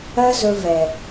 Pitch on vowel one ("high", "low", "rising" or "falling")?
high